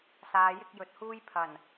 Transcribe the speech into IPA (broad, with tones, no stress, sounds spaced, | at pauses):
s aː˨˧ j ɪ˥ k̚ j ɵ˨ t̚ h uː˥ j pʰ ɐ˨˩ n